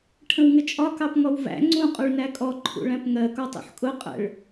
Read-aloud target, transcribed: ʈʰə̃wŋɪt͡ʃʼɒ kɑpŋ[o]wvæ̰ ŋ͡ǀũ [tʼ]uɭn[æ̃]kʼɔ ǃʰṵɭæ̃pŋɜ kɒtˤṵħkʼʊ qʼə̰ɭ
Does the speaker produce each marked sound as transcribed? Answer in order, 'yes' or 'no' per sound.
no, no, no

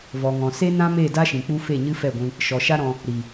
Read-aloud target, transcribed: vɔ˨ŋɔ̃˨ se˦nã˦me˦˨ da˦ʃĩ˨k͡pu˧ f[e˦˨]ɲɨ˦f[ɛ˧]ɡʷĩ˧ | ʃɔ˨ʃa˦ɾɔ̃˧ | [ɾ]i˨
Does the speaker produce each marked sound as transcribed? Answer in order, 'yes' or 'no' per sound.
yes, no, yes

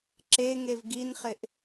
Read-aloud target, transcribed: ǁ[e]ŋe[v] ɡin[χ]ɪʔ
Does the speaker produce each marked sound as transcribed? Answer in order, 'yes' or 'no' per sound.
yes, yes, yes

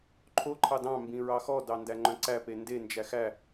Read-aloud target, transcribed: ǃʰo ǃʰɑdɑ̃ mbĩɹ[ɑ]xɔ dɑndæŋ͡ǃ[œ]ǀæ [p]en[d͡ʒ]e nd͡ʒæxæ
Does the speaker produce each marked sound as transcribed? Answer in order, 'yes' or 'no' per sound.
yes, no, yes, no

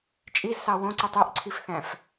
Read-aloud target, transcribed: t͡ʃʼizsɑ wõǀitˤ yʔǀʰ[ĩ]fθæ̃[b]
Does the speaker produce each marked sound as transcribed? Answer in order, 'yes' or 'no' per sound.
no, no

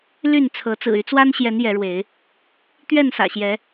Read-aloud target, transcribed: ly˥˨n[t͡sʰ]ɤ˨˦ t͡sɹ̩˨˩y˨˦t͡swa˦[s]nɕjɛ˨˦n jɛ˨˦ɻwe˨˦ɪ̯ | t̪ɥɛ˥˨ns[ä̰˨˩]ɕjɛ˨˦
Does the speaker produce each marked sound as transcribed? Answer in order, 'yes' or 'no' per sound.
yes, no, yes

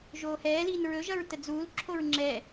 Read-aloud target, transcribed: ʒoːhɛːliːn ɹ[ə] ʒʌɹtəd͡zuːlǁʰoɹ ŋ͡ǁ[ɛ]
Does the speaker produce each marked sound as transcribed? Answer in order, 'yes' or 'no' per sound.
no, yes

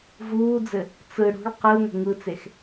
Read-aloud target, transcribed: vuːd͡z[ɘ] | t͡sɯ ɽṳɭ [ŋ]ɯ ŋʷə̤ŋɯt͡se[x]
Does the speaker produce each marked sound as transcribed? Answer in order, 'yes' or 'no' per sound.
yes, no, yes

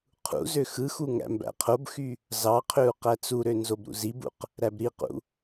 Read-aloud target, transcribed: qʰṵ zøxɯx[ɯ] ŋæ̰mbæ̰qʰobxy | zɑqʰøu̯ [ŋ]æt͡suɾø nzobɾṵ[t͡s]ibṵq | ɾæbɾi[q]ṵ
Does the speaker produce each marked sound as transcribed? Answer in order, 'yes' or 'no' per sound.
no, no, no, yes

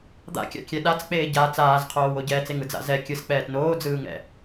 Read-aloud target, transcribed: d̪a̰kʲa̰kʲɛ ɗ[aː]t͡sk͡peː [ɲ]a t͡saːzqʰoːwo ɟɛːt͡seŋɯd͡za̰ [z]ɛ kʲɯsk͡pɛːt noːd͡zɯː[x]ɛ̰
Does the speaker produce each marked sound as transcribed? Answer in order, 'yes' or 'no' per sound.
no, no, yes, no

